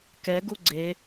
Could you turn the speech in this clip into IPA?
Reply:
k ɛ ɡ u ɡ͡ǀ e

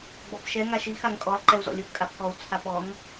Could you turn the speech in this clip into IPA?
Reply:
ɡ͡b ɔ p ʃ ɛ ŋ a ʃ i x a ŋ kʼ ɔ lˠ ǃ ɛ u̯ z ɔ̰ lʲ ʊ p kʼ a p k ɔ u̯ t͡sʰ a p ɔ ŋ

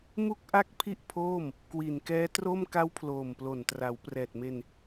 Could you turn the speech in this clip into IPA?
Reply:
m u˥˩ k̚ ʔ a˥˩ k̚ pʰ i˥˩ ʔ pʰ oː˥˩ m | k w i˨˩ n k ɛː˦˥ t r o˥˩ m k a˦˥ w pʰ l oː˨˩ m p l o˨˩ n t r a˩˦ w p r ɛː˨˩ t̚ m e˧ n

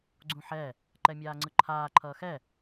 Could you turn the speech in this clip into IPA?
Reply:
ɡ͡ǀ ũ ħ ɛ | ǃ ɛ mʲ aː ŋ͡ǀ ɯ ǃʰ aː ǃʰ ʌː x ɛ

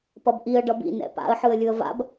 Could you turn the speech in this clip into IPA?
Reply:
p ʌ b ʔ i ə̯ ɖ ʌ b ḭ n ɛ̰ p a̰ ə̯ ħ ɯ ə̯ lʲ ɯ ə̯ v a̰ b

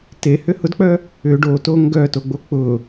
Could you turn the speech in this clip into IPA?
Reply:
t e h ʏ h ʊ d k͡p œ | ʏ ɖ o t o ŋ ɡ œ t o ɡ͡b o k͡p ʊ

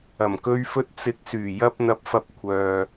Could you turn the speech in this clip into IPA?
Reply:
ɐ˨˩ m k ɵ˧ ɥ f ɵ˧ t̚ t͡s ɪ˨˥ k̚ s yː˨˩ j ɐ˧ p̚ n̪ ɐ˧ p̚ f ɐ˧ p̚ kʷʰ œː˨

